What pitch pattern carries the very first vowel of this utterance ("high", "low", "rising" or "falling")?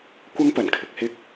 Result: high